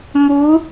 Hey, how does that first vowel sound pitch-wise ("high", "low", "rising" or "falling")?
rising